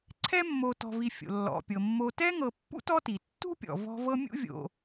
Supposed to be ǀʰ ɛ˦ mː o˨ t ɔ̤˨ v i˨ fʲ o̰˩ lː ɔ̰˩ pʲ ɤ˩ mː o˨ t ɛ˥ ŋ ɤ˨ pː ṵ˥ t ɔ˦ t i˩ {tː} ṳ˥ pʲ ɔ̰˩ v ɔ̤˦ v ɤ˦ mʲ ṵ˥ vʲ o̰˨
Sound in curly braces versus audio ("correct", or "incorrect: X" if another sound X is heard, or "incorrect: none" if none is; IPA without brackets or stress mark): correct